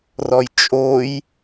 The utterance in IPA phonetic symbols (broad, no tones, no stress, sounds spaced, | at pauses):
r ɔ j t͡ʃʼ o j